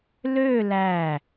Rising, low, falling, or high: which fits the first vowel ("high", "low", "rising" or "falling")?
falling